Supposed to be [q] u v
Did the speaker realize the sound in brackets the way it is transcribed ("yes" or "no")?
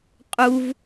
no